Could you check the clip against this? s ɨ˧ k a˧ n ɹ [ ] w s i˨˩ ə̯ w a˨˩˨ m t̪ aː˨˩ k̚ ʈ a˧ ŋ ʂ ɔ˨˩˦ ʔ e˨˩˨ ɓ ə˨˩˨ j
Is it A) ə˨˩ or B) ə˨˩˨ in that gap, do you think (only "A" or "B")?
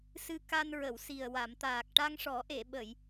B